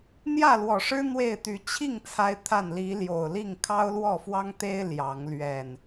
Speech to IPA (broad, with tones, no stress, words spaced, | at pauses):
n̪jä˥˨lwɔ˨˩ʂɻ̩˦ n̪we˥˨ɪ̯t̪y˨˦ t͡ɕʰi˥˨ŋ t͡sʰa˦ɪ̯t̪ʰa˥˨n li˨˦ljo˨˩ʊ̯li˥˨ŋ kʰɑ˦ʊ̯lwɔ˥˨fwɑ˦ŋt̪e˦ɪ̯ ljɑ˨˦ŋ lɥɛ˨˩n